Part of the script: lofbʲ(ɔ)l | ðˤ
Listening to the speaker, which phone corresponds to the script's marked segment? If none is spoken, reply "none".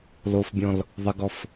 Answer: ɔ̃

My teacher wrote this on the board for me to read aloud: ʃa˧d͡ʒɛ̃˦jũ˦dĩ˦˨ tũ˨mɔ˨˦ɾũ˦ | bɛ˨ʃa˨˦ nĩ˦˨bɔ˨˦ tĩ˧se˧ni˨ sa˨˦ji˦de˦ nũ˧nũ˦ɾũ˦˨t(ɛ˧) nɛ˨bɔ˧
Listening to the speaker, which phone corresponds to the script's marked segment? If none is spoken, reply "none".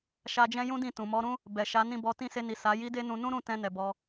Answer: ɛ̃˧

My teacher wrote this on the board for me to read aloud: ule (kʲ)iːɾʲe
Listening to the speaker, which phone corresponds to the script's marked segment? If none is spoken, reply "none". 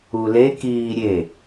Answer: k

